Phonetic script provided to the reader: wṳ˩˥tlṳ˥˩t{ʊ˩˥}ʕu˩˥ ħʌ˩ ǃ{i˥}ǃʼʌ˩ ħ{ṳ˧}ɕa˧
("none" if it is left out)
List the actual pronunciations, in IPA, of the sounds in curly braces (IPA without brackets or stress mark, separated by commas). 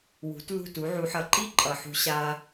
u˩˥, i˥, ṳ˧